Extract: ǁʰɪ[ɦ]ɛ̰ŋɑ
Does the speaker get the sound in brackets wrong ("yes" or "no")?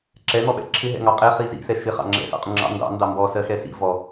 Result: no